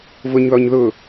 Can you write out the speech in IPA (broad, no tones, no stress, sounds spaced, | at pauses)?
v ʊ ɲ ð ɔ ɲ ð ʊ